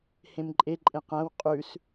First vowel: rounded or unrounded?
unrounded